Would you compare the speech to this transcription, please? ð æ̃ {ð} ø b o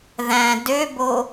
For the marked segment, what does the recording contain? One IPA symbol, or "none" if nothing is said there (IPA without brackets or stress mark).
d